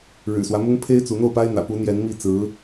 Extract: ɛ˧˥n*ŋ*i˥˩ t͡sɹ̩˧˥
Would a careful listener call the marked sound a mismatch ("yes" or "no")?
yes